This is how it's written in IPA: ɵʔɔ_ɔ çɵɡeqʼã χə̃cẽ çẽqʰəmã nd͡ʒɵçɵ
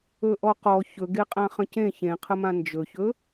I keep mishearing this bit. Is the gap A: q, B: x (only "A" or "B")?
A